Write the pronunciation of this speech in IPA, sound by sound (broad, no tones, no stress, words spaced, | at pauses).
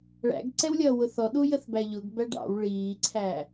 ɭæ̰ɡǀɛwlʲʌː wʊθɔɗu jəθbæʎʊɡ bæɖɑ̰w ɭiːǀʰæ